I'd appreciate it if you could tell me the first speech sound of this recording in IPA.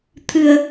t̪ʰ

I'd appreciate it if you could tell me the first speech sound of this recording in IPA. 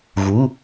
ɣ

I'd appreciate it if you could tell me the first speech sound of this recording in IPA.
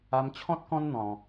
a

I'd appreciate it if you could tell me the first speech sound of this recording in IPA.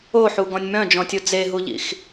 o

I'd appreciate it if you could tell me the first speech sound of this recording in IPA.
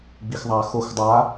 ɡ͡b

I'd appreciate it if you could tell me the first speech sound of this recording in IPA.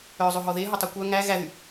œ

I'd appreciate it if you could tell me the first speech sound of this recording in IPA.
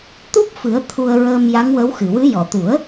t̪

